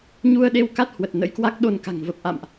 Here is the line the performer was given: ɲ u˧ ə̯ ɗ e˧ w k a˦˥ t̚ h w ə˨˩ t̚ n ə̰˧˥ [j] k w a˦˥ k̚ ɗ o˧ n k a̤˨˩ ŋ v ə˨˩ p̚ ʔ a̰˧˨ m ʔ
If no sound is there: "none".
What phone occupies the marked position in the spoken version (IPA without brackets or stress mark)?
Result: j